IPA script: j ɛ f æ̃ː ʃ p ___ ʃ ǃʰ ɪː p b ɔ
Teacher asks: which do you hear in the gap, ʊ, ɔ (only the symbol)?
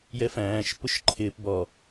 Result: ʊ